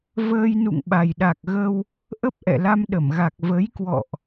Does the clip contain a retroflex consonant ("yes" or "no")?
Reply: no